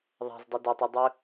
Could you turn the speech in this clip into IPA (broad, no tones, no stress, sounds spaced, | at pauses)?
ðˤ a̤ z dˤ ɯ d ɐ tˤ ɯ dˤ ɵ